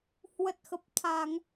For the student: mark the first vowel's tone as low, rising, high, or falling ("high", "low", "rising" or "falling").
low